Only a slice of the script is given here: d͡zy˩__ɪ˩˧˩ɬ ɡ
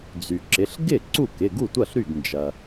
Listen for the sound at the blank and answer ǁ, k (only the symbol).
ǁ